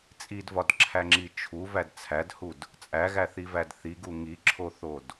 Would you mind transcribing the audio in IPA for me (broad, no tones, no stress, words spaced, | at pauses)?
t͡sʼidvɒdǁʰæŋ͡ǁi t͡ʃʰuvæd t͡sʰædhud | t͡sʼæɣæθivæd θiɡu ŋiǁʰoθod